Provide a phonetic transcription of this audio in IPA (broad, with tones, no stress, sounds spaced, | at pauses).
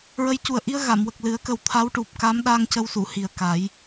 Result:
ɹ ə˧˥ j c u˨˩ ə̯ ʔ i˧ ə̯ ɣ a˨˩˨ m w ə˨˩ k̚ l ɨ˨˩˦ ə̯ k ə˨˩ w t̪ʰ a˧˥ w ʈ u˨˩ p̚ k a˧˥ m ɗ a˧ ŋ c ə˧ w s u˨˩˨ h i˨˩ ə̯ k a˨˩˦ j